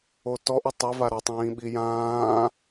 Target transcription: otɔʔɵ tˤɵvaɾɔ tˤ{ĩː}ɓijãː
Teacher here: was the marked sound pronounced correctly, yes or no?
yes